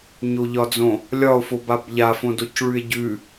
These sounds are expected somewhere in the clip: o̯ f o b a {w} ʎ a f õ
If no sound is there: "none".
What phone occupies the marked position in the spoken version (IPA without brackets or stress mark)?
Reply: b